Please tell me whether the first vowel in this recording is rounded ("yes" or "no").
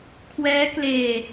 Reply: no